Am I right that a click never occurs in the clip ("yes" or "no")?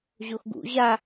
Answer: yes